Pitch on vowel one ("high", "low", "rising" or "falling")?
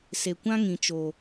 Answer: low